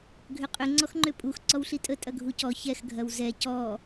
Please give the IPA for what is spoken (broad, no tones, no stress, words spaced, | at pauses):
ɡʱʏqʼʏ ŋ͡ǀɔxŋ͡ǃʏpʼux ǀɔwɬitʼə tʼɐɡʱucɔ çɛx ɡʱɐwzɛ cɔ